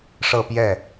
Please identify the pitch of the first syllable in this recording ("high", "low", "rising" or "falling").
falling